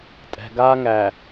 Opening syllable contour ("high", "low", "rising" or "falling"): low